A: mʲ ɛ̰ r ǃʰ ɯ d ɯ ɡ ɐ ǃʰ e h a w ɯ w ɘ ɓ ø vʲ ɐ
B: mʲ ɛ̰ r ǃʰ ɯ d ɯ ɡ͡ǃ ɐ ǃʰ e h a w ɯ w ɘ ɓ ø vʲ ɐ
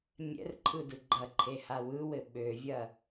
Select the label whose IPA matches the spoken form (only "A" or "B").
B